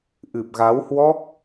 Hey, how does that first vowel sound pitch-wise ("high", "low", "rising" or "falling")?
low